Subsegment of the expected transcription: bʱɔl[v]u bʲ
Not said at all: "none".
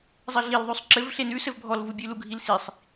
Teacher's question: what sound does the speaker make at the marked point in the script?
v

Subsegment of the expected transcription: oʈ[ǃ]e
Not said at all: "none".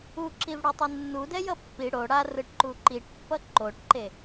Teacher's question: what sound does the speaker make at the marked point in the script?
ǃ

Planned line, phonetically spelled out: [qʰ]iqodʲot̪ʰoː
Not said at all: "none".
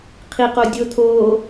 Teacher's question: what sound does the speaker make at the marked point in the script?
qʰ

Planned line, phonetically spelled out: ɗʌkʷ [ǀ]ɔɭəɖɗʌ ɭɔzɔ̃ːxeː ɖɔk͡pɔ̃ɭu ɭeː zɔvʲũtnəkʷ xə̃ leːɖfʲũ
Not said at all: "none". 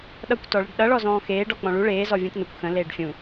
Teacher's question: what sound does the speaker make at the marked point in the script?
t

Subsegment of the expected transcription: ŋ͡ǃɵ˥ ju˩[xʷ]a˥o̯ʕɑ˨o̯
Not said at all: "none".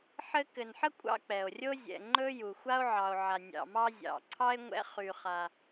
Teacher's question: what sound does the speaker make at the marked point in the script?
xʷ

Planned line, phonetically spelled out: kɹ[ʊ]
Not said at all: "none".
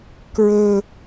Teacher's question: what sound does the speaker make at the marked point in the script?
ɵ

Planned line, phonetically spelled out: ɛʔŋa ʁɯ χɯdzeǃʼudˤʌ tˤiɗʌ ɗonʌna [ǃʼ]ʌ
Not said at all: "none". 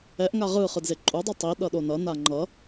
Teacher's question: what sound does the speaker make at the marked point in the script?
ŋ͡ǃ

